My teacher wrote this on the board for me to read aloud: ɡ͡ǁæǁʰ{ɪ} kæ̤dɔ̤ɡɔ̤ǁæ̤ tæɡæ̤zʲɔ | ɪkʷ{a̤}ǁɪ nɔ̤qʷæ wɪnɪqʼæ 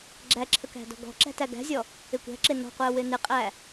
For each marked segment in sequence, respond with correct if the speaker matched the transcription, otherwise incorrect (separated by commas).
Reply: incorrect, incorrect